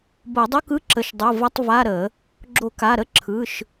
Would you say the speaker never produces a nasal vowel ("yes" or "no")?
yes